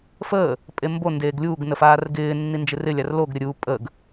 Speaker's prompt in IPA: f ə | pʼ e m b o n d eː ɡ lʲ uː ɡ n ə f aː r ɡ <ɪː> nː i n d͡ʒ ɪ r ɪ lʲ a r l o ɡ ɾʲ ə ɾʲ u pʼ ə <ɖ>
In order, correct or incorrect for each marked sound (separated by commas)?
correct, incorrect